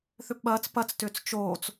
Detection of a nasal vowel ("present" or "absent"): absent